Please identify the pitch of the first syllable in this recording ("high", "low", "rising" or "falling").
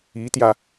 rising